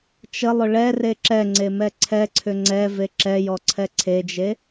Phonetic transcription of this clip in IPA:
t͡ʃəlˠʏ ɭɛ reǁɛŋ͡ǀe mɛǀʰɛǀʰʏ ŋ͡ǀɛ veǁɛjɔ ǀʰɛǀʰed͡ʒe

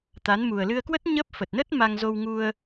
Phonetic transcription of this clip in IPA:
t̪a˨˦n mu˨˩ə̯lɨ˧ə̯kwə˦˥t̚ ɲə˦˥p̚ fə˨˩t̚nə˦˥t̚ma˧ŋ zo˧wŋu˧ə̯

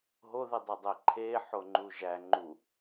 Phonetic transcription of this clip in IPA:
ɦoðidˤedˤe ǃʰeħoŋ͡ǃu ʒæ ŋ͡ǃu

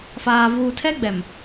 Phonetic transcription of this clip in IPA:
faː˨ vuː˨tʰɛ˦ ɡ͡bɛ˨m

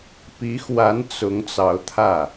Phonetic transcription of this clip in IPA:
pi˧˥xwa˧˥n t͡sʊ˧˥ŋ t͡sɑ˧˥ʊ̯t̪ʰä˥˩

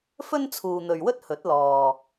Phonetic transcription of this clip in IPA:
fɵ˥nt͡sʰuː˨n̪ɵ˨ɥwɵ˥t̚ hɵ˨˥t̚lɔː˨

